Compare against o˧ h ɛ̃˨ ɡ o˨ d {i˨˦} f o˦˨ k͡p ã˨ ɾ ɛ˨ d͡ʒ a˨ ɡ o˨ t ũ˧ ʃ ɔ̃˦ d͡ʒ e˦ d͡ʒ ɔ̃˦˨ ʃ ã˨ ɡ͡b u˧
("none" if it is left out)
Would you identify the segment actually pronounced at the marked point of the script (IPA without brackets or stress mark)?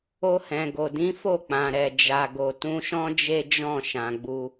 ĩ˨˦